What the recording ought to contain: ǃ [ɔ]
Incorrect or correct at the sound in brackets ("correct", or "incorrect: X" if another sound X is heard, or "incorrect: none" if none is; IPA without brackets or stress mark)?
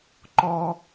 correct